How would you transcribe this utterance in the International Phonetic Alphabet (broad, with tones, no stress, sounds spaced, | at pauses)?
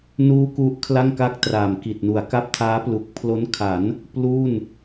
n uː˦˥ k u˦˥ ʔ kʰ l a˥˩ ŋ k a˥˩ k̚ t r aː˨˩ m k i˨˩ t̚ n u˩˦ a̯ k a˥˩ p̚ tʰ aː˦˥ p l u˨˩ k̚ pʰ l o˦˥ n kʰ a˩˦ n | p l uː˥˩ n